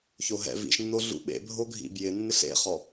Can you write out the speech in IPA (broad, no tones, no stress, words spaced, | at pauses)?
çoɦɛ̰ vḭʃnːo ɮṵɓḛbʱo ɡʱḭbjɪ nːɪɬḛχɔ